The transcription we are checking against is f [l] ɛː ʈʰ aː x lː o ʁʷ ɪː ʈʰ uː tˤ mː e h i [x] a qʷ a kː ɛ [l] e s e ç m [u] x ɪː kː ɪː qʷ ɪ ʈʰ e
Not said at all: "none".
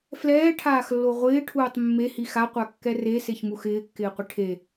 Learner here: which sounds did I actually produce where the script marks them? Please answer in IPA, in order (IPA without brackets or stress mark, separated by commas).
l, x, r, u